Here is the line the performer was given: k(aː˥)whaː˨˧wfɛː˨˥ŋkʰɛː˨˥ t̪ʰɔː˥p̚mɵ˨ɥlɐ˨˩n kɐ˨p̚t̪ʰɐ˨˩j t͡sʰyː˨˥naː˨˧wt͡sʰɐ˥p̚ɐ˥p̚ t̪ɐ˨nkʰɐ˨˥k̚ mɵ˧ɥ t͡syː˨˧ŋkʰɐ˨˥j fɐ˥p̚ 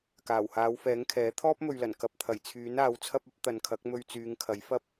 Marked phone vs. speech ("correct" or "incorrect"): incorrect